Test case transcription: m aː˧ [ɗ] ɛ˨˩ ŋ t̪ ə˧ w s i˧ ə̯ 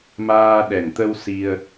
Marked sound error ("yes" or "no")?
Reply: no